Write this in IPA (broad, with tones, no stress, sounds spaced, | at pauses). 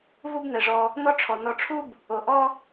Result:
v u˦ b n̪ ɛ˩ ʐ ɔ˨ | n ɔ˦ ʈ͡ʂʰ ɔ˩ n ɔ˨ ʈ͡ʂʰ u˥ b | o˩ ʔ ɔ˥